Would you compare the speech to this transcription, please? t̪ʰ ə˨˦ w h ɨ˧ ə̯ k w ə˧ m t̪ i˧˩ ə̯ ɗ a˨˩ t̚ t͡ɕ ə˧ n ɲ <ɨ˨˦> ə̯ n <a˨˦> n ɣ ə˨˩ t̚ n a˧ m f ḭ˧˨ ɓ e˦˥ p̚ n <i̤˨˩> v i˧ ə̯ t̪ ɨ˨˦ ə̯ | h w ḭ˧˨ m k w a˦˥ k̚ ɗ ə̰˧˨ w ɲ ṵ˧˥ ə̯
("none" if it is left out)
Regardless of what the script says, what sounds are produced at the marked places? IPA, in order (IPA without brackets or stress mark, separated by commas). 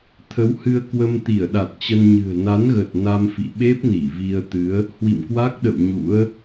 ɨ̤˨˩, a˨˦, i˧˩